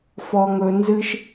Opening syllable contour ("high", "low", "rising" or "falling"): high